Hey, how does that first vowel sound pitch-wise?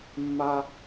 high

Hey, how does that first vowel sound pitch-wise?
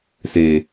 low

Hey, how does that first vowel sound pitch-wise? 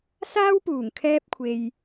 high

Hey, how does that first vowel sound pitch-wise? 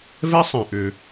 high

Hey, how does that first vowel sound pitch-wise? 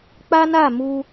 high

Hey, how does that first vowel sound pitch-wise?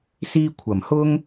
high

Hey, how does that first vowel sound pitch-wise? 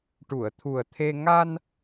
low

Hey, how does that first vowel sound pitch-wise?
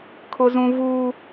high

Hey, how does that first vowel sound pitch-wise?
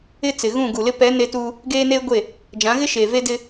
high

